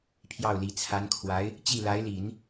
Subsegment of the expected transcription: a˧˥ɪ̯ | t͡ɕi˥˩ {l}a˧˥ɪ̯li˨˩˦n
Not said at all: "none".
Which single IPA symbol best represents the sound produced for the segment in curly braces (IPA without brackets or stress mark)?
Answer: l